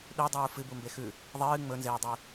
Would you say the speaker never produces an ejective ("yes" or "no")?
yes